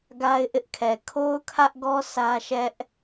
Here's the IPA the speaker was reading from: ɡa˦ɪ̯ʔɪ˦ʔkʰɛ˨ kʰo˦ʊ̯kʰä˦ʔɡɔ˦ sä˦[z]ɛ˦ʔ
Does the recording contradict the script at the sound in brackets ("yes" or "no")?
yes